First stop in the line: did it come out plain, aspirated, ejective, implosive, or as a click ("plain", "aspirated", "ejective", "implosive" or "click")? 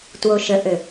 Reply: plain